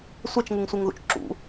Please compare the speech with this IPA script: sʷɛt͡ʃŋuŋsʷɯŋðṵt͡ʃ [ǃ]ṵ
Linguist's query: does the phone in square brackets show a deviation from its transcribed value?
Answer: yes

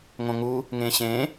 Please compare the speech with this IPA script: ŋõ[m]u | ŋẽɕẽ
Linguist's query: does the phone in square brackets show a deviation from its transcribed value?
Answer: yes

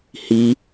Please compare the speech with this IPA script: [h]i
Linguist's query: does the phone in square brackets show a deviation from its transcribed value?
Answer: no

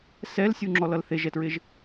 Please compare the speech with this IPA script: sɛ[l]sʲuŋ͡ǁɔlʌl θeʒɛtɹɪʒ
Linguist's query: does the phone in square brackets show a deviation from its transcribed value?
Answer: no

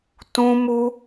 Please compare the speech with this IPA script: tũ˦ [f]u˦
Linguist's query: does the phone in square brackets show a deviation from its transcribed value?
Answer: yes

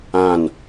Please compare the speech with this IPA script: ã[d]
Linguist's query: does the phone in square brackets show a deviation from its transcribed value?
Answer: yes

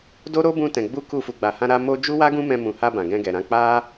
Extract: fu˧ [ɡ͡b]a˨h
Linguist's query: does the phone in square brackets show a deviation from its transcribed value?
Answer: no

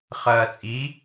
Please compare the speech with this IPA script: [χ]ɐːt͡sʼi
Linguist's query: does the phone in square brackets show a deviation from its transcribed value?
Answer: no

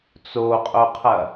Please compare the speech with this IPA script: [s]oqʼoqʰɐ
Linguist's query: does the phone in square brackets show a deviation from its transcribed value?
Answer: yes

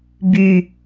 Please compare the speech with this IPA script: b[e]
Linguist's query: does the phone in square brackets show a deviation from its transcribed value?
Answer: yes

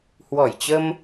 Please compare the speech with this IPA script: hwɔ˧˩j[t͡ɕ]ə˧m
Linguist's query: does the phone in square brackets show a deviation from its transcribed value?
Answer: no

